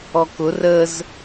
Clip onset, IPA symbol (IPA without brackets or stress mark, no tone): ɔ